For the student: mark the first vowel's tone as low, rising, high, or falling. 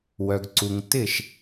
low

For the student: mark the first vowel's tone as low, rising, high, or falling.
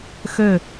falling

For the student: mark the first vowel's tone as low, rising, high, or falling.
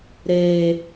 low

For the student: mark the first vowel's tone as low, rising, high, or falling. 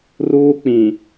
high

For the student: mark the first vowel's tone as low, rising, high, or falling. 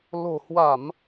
low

